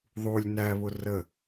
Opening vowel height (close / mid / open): close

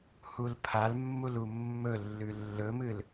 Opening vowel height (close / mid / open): close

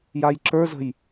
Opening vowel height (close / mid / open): open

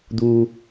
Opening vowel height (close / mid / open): close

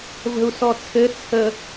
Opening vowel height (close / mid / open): mid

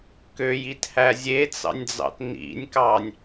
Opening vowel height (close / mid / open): mid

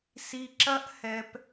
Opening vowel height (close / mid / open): close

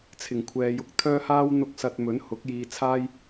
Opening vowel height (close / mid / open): close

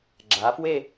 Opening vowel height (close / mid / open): open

